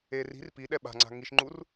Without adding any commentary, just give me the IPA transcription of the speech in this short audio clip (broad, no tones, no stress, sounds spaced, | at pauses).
e r i̤ r p i ɗ ɛ ɓ a̤ ŋ͡ǀ a̤ ŋ i ʃ ŋ͡ǃ u r